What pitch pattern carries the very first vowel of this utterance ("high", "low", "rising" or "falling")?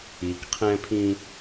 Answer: low